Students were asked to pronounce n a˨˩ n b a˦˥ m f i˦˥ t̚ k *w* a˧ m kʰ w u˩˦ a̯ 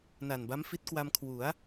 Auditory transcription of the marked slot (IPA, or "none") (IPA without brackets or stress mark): w